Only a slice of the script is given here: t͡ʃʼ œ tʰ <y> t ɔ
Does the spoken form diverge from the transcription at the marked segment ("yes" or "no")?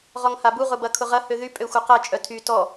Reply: no